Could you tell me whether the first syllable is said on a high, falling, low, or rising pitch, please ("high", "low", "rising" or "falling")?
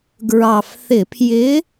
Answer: low